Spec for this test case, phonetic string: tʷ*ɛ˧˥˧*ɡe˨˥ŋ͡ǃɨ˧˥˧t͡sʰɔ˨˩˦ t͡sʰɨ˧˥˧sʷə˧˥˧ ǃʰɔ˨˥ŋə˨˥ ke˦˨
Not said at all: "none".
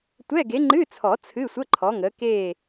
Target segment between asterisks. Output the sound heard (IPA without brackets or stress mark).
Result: ɛ˧˥˧